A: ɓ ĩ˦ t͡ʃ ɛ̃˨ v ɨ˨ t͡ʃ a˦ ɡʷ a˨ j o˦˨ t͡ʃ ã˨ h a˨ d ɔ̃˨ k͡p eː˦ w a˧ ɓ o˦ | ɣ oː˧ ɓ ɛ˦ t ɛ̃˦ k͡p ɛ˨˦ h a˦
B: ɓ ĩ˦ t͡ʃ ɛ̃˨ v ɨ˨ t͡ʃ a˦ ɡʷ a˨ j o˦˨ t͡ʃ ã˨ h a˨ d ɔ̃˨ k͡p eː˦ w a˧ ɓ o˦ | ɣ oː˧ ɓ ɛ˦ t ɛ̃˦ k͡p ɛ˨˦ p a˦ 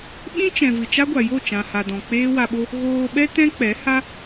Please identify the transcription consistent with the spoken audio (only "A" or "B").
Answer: A